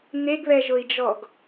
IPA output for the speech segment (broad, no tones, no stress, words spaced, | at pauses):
n̪eɡβɛʒʊi̯d͡ʒɔɡ